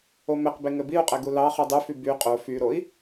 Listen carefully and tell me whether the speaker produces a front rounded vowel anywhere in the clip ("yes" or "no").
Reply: yes